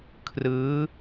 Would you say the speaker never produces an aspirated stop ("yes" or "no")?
no